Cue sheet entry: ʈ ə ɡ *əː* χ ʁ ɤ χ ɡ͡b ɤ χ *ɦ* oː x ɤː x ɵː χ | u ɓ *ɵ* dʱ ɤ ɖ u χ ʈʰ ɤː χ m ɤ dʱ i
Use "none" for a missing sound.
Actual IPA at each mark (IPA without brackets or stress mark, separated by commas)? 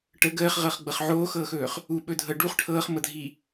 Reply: əː, ʕ, ɵ